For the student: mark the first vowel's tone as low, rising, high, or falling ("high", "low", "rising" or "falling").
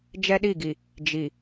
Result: high